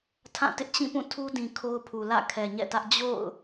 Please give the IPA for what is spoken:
tʰã˦˨tɪ˦ʔ t͡ɕĩ˦˨pũ˦˨ tʰu˦dĩ˨ kʰo˦ʊ̯pʰu˨ lä̰˦˨kʰɛ˨ɲɛ̰˦˨tä˦ʔ d͡ʑo̰˦˨ʊ̯

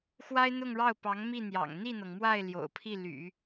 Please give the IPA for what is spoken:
xwa˥ɪ̯n̪ʊ˥˧ŋɻɑ˥˩ʊ̯pɑ˧˥ŋ mi˥˩n̪jɑ̰˨˩ŋ n̪i˥˩n̪ɤ˩ŋmwa˥˩ɪ̯ ljo̰˨˩ʊ̯pʰi˥˩ ly̰˨˩˦

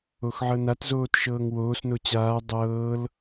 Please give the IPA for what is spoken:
oxʕɤnatzoːt ʃɤːŋwoːsno t͡ɕaː dˤɤːl

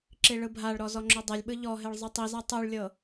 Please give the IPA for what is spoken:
ǁiɭɯbʱaɭɾɔ zɔŋ͡ǁodˤɛlʲɓɯ ʎɔɦeɭ zˤɯtˤiza tˤuɭlʲɤ

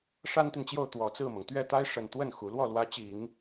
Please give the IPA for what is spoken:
ʂa˥nt̪i˨nt͡ɕjo˥˩ʊ̯ t̪wɔ˨˩t͡sɹ̩˥˩mɤ˩ŋ t̪ɥɛ˥˩t̪a˥ɪ̯ ʂə˨˩nt̪wə˥˩n xu˧˥ lwɔ˥˩lwä˧˥ t͡ɕi˨˩˦ŋ

